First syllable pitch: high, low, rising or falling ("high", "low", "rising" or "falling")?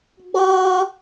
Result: high